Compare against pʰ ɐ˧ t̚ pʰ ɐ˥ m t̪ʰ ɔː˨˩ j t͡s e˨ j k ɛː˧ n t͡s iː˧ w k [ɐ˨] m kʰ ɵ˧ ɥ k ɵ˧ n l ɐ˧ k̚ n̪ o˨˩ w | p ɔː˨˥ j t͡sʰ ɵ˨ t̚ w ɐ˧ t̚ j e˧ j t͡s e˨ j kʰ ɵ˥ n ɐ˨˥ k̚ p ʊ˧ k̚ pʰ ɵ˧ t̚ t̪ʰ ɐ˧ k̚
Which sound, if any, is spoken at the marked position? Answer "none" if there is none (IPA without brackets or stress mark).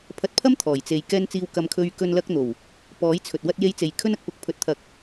ɐ˧